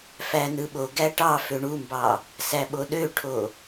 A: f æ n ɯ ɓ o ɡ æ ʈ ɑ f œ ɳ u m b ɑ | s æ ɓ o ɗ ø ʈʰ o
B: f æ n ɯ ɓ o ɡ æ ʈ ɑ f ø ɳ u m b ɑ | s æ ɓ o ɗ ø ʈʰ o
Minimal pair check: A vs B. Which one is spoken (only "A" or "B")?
B